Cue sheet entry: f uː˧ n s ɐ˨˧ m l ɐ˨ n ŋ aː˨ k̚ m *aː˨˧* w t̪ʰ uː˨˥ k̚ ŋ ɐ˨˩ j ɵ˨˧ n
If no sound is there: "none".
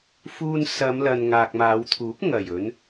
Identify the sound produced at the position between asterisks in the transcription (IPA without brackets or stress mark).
aː˨˧